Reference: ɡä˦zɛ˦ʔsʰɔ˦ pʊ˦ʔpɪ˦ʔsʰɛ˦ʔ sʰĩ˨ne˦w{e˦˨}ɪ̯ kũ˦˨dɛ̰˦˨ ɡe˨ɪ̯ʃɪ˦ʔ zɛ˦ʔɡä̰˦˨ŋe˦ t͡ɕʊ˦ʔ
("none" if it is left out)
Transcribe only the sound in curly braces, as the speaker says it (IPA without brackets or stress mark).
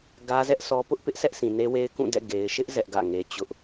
e˦